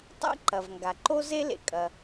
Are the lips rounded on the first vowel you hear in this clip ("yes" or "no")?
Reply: no